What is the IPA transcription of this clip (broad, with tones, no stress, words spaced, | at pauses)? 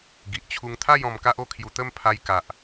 ɡi˨ʔt͡ɕʰu˧ŋt̪ʰa˥˧j ɔ̃˧mka˦ʔo˦kʰju˧ t̪ə˥˧mpʰa˧j ka˨ʔ